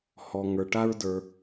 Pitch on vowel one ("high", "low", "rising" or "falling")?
low